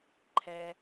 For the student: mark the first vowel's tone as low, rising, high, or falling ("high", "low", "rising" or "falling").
low